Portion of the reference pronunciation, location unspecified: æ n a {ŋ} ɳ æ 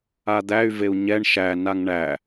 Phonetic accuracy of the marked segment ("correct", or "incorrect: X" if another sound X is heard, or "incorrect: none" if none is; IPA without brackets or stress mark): correct